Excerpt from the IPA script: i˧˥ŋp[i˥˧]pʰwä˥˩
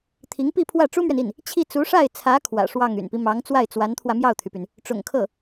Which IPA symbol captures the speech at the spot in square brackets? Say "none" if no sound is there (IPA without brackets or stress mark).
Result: i˥˧